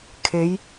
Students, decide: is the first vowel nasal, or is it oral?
oral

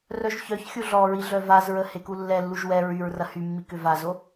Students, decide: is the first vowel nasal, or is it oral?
oral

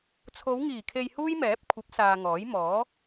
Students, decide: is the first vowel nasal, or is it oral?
oral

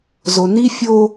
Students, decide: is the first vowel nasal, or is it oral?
oral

